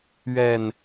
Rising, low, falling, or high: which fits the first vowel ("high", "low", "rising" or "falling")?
low